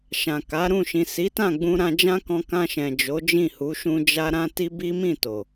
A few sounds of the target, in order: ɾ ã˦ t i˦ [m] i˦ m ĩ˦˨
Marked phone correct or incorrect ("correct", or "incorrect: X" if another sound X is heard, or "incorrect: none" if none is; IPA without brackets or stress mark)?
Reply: incorrect: b